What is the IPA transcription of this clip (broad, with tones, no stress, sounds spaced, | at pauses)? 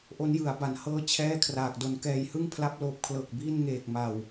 ʔ o˦˥ n j ɯ˩˦ a̯ b a˩˦ n h ɤː˦˥ t͡ɕʰ ɛː˥˩ kʰ r aː˨˩ k̚ d o˧ n k ɛː˨˩ j h ɯ˥˩ ŋ pʰ l a˦˥ p̚ l oː˨˩ p̚ kʰ l ɤː˨˩ k̚ b iː˥˩ n ŋ eː˨˩ k̚ m a˨˩ w